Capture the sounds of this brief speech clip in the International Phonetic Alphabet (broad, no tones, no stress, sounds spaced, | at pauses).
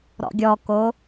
ɾ ɔ̰ ɡʲ ɔ k o